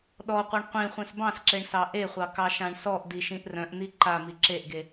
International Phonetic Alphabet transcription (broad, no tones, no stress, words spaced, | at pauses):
ɗɔqʷʌɳ qʷĩ χʷẽsbɑ̃sǁeɳ sɑʔeχʷɑ kɑʃãɳsɔʔdi ʃĩʔrœ̃ʔn̪i ǃa miǁeʔɡe